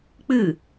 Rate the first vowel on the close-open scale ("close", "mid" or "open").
close